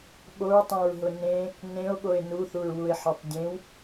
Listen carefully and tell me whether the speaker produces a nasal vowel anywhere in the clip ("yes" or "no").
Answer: yes